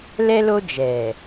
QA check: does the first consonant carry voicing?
yes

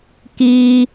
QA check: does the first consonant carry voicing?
no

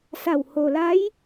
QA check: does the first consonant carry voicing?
no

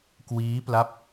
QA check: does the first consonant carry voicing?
no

